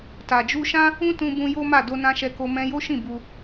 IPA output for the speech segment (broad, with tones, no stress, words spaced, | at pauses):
ta˨d͡ʒu˧ʃã˦ | ũ˦tũ˧bũ˧ jo˦ma˦˨ do˧nã˧ʃɛ˧ko˧ mɛ̃˧jo˦ʃĩ˦˨ bu˧